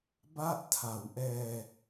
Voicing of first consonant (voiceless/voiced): voiced